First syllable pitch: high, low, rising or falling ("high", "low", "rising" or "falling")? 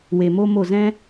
low